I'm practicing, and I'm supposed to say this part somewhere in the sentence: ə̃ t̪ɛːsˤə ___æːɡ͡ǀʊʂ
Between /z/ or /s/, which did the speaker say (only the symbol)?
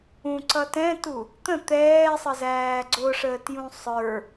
z